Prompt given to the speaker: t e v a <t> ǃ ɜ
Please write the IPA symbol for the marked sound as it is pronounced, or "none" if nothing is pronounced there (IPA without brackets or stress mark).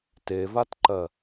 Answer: t